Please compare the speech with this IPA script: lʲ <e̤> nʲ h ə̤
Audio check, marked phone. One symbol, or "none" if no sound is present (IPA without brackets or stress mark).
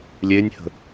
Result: e